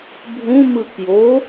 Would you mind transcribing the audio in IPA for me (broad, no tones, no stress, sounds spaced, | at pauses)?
bʱ ũ m ɯ k j o